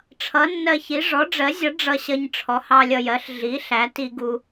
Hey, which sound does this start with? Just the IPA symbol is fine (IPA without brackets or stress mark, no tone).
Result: ʈ͡ʂʰ